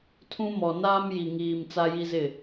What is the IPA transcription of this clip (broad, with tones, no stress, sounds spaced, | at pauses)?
tʰ ũ˦ m ɔ˨ n aː˦ m j i˨ ŋ iː˨ m t͡s a˦ j i˦ z ɪ˦˨